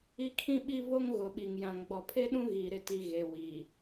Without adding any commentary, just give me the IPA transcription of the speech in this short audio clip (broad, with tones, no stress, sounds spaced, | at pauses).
i˦ kʰ ĩ˦ ɓ i˦ v o˦ ŋ ɣ ʊ˨ ɓ i˨ ŋ j ã˨ ŋ ɡ͡b ɔ˨ pʰ e˦ ɗ ũ˦ ɣ iː˨ ɾ ɪ˨ t i˨ ɣ e˨ w i˨